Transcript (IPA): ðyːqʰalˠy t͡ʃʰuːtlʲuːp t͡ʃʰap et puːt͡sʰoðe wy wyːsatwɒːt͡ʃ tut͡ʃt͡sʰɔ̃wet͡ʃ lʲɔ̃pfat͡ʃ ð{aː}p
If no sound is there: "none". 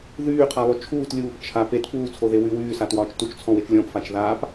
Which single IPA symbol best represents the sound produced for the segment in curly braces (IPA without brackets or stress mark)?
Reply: aː